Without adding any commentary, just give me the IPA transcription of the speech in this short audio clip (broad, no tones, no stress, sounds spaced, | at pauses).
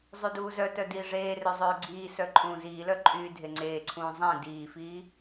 zˤ y d uː z œ t œ d iː ʐ eː r ø zˤ øː ɡ͡ǀ iː s œ ǃʼ ũː z iː l œ ǃʼ yː dʱ e ŋ͡ǀ eː ǀʰ ũː zˤ ẽ d iː f iː